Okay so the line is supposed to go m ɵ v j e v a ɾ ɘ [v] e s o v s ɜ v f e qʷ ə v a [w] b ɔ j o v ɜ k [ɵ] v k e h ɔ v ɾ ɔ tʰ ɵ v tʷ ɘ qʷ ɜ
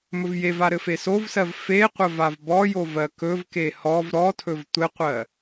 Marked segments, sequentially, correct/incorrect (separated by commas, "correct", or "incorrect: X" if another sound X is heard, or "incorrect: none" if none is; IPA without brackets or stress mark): incorrect: f, incorrect: v, correct